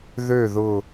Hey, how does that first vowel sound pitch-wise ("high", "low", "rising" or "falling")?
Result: falling